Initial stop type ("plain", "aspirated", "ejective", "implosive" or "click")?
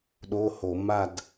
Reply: implosive